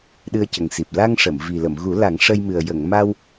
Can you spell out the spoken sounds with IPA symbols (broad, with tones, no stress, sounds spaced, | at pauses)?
ɗ ɨ˧ ə̯ c ə˨˩ ŋ s i˨˩ p̚ l a˧ ŋ ʂ ə˨˩˨ m v i˨˩ l ə˨˩˨ m ɣ u˨˩˦ l a˨˩˦ ŋ ʂ ə˧ j m ɨ˨˩ ə̯ j ə˨˩˨ ŋ m a˧ w